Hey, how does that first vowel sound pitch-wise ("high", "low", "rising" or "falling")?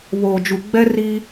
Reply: low